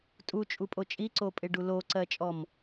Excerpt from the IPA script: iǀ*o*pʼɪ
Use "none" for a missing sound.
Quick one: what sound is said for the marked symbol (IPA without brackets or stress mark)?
o